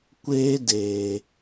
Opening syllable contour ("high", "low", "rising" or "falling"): high